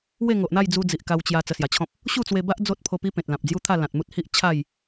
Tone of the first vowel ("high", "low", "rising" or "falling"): falling